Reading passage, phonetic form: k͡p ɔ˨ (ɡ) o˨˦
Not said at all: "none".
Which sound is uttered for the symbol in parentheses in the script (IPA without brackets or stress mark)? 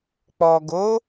ɡ